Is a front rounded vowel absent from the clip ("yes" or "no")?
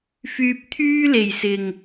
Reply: no